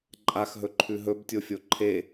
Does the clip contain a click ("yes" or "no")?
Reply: yes